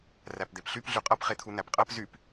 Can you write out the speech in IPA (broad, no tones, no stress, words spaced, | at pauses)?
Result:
ræpd̪epɬyp ɮyqʼʌp χet̪ʰun̪æpqʼɜp zyp